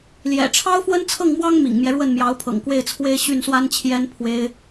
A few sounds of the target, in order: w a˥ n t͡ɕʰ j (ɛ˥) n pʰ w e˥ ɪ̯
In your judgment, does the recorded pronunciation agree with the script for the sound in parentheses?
yes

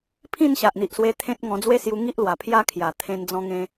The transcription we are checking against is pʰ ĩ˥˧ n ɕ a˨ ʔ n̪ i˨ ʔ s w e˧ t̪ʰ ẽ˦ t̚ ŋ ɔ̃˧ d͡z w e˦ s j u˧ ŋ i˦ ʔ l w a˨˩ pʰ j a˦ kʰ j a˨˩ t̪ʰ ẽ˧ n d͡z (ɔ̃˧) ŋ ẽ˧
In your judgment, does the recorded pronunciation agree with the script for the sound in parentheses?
yes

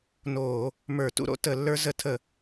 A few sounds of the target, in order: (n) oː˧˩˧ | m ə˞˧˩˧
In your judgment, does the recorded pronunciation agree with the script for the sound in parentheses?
yes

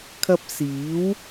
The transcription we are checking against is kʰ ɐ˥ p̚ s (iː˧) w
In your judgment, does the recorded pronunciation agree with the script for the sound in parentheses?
no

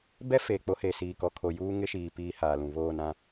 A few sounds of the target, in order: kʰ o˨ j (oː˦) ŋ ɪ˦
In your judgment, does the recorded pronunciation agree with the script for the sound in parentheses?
no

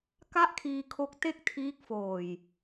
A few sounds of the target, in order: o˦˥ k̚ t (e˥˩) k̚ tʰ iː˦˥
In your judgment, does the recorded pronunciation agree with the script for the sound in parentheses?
yes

